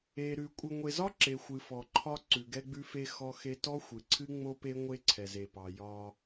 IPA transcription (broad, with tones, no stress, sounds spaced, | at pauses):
e˨ ɾ ʉ˨ kʷʼ ɨ˨ ŋʷ e˨ z ɒ˦ ǁ e˨ xʷ ɨ˨ f ɔ˨ ǃʰ ɒ˦ ǀ ʉ˨ ɡ ɛ˦ ɡ͡b ʉ˦ f e˦ x ɔ˦ x e˦ t ɔ˦ xʷ ɨ˨ ǀʰ ɨ˦ ŋ͡m o˦ p e˦ ŋʷ e˦ ǀʰ ɛ˨ z e˨ p ɑ˨ j ɒ˦